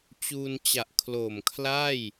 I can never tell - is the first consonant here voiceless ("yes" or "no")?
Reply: yes